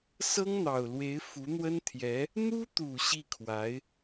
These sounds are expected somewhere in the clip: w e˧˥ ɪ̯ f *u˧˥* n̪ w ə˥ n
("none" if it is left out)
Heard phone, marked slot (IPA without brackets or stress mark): u˧˥